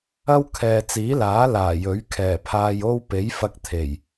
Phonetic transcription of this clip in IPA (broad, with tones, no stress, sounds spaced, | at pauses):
ɐ˥ w kʰ ɛː˨ t͡s iː˨˥ l aː˨˥ l aː˨˩ j ɵ˨˥ ɥ kʰ ɛː˨˩ pʰ aː˧ j o˥ w p e˨˥ j f ɐ˧ k̚ t̪ʰ e˨˩ j